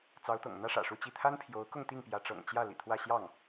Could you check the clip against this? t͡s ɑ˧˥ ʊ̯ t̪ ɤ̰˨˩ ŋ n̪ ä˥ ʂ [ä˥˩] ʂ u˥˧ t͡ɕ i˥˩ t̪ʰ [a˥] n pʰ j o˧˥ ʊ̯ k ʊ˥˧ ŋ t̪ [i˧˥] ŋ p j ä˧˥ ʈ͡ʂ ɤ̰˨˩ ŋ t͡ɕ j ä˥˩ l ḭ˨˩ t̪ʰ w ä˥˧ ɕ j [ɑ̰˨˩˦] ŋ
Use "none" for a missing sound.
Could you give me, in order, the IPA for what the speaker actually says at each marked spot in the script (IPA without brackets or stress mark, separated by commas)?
ä̰˨˩, a˥, i˥˩, ɑ˥˩